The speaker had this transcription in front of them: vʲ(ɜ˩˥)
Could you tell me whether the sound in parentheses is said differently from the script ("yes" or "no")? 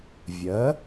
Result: no